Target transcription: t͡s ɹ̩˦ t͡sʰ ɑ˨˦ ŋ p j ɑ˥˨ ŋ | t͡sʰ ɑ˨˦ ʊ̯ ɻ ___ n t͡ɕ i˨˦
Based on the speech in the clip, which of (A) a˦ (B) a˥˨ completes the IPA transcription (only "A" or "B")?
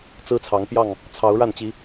B